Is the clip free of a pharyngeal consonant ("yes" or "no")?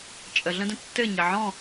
no